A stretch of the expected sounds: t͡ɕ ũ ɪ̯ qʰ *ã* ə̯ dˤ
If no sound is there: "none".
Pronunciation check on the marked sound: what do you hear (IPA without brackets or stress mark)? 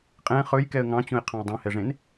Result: ɑ̃